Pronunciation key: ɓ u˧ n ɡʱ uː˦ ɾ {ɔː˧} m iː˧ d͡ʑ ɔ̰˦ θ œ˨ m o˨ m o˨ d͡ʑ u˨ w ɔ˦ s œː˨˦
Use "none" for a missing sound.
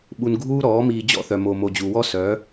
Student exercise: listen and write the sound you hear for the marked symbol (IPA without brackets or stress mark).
ɔː˨˦